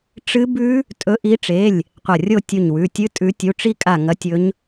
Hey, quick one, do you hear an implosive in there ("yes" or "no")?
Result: no